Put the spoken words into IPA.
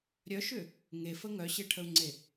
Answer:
ɾʲ œ ʃ ʏ | ŋ e f ə ŋ œ ɕ e ʈʰ ə u̯ ŋ͡ǀ e

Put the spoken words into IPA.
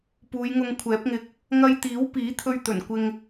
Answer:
p uː˨˧ j ŋ ʊ˧ ŋ kʷʰ ɛː˨˥ p̚ ŋ ɪ˧ k̚ | ŋ ɐ˧ j t̪ iː˨˥ w p iː˨˥ t̪ʰ ɵ˧ ɥ t̪ ɵ˨˩ n kʷ ɪ˧ ŋ

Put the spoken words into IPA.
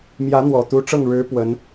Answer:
m j ä˧˥ n̪ w ɔ˨˩ t̪ u˧˥ ʈ͡ʂ ɤ˥˩ ŋ ɻ ɻ̩˧˥ p w ə˧˥ n

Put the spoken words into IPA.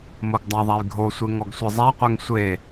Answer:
m o ɡ dˤ a ðˤ a j ɡʱ o sʷ e ŋ ɔ ɡ sʷ e zˤ a qʷ ɛ ŋ sʷ e

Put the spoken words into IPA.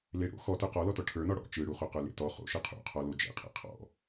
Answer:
l e ɽ o̰ x ɔ t ə˞ q ɔ l ɔ t ɔ ʈʰ ə˞ n ɔ ɽ ɔ̰ t͡ʃ ɯ ɽ u χ o q ə˞ l ḛ t ɔ χ o̰ ʃ ɯ qʰ ṵ qʰ ɔ l o d͡ʒ ḛ qʰ ḛ qʰ ɔ̰

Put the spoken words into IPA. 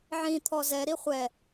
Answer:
ʕ ĩ t̪ʰ ɔ z ɛ ɾ i χʷ ɛ

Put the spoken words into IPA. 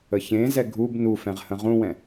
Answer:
ə ç ẽ z ɛ ɡʱ u b n u f ɛ̃ ʁ h ə̃ ʁ ũ w ɛ̃

